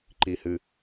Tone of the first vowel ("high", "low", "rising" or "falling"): low